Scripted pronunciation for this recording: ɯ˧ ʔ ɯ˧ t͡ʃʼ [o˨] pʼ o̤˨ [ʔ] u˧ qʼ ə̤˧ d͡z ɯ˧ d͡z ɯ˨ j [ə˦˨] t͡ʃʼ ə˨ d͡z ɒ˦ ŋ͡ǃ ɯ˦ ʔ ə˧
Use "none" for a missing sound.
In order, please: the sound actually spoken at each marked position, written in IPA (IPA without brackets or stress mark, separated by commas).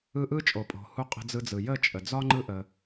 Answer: o˨, h, ə˦˨